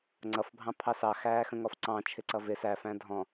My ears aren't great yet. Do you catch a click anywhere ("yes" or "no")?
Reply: yes